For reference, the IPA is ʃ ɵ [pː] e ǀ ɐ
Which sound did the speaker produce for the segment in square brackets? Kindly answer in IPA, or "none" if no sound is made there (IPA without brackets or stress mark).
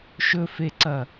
f